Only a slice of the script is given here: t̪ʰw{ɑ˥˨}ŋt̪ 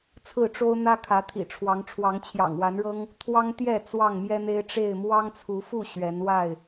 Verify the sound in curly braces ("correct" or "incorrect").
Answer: incorrect